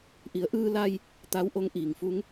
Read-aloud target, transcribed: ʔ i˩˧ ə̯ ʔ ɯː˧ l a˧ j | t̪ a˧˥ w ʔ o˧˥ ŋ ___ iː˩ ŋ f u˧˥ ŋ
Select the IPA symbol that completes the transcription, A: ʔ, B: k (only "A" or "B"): A